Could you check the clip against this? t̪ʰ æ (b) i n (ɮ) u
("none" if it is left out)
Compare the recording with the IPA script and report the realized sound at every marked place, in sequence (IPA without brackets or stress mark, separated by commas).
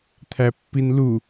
pː, l